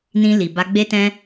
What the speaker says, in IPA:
n ĩ˧ l i˨ b a˧ ɡ͡b e˦ t ɛ̃˦

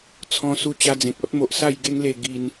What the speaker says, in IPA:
t͡sʰ ɔ̃˧ s u˧ t͡ɕ a˧ d͡z ẽ˨ k̚ ɔ˦ t̚ m o˨ ʔ s a˥˧ j ɡ e˦ ŋ l e˧ ɡ i˧ n

